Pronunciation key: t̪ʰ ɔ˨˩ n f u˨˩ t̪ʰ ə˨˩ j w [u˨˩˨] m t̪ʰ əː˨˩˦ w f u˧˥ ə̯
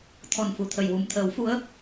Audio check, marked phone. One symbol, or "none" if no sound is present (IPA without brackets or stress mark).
u˨˩